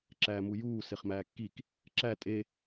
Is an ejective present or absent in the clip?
present